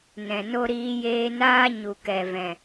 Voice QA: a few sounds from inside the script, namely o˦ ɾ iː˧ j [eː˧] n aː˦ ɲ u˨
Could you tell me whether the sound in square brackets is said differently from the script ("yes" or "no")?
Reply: no